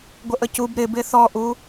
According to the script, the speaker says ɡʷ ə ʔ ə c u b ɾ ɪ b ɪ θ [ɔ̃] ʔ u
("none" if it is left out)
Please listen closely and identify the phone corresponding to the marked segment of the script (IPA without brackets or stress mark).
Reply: ɔ